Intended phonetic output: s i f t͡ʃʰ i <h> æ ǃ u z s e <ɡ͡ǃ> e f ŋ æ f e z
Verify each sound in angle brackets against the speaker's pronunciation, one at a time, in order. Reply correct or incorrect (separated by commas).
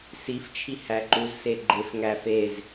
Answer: correct, correct